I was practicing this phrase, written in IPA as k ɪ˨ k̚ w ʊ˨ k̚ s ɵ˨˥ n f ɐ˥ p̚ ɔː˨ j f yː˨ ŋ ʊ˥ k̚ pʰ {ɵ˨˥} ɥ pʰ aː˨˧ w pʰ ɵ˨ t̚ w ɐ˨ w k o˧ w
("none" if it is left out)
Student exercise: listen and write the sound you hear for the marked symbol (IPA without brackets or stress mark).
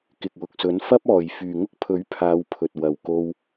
ɵ˨˥